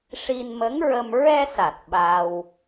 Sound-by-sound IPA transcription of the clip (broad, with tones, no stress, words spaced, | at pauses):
ʂi˧nmə˧˥ŋɹə˧m ɹɛ˧sa˨˩t̚ ɓa˧w